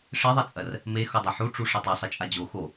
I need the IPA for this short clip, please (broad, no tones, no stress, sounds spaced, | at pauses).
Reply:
ʂ e ðˤ e t͡sʼ ɐ r | m e x o dˤ ɐ ħ u ʈ͡ʂ u ʂ ɐ tˤ o sˤ ɐ t͡ʃʼ a d͡ʑ o x o